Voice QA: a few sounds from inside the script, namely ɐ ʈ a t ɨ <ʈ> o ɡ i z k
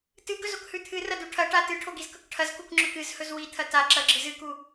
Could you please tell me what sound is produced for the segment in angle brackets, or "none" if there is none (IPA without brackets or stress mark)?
ʈʰ